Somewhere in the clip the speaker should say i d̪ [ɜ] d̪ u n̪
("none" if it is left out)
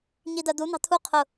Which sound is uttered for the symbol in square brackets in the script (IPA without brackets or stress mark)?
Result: ɜ